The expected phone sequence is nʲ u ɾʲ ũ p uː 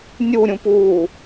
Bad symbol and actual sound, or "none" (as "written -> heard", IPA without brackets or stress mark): none